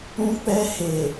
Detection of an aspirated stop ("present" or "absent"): absent